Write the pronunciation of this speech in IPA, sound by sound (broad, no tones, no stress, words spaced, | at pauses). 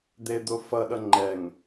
d̪ed̪o fʌɗʌ ŋ͡ǃɛŋ